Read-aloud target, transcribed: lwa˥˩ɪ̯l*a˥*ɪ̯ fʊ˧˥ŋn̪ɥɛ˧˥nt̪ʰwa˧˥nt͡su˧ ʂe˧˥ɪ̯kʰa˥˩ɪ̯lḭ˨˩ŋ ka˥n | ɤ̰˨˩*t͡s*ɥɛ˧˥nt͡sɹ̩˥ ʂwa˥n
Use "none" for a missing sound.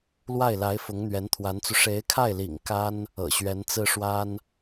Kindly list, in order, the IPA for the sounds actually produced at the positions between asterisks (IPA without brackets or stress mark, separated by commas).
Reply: a˧˥, ɕ